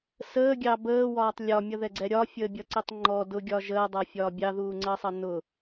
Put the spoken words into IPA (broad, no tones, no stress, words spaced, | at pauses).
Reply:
səːɡʲɑ bəːwɒːtˤ lʲɒmʲʌðɛɡ͡ǀɛ ɾʲɒfʲəːbʲʌǀitˤ ŋ͡ǃɔ dʊɡʲɒ ʒəːdˤɜfʲɒː bʲɑðuːŋ͡ǀəːsˤʌ nʊ